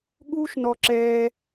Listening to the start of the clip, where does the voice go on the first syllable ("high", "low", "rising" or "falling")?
high